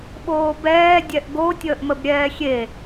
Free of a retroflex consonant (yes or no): yes